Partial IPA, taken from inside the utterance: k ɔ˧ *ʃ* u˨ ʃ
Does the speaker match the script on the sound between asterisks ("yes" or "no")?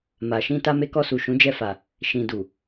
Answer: no